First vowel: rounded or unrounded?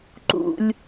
rounded